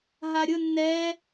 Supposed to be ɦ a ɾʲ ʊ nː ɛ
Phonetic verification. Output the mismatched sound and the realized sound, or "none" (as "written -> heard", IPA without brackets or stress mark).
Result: none